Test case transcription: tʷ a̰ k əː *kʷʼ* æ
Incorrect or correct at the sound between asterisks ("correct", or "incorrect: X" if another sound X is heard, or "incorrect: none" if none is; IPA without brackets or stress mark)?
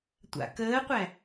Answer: incorrect: qʷ